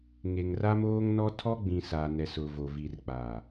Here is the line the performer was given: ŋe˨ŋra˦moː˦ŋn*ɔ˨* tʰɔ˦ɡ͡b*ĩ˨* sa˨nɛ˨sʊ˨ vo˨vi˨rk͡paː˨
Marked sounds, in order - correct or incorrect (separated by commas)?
incorrect, correct